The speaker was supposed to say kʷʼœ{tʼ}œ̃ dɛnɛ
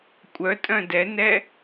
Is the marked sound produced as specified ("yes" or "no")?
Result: yes